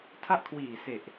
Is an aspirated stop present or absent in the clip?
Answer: present